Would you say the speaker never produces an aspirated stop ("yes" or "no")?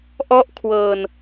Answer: no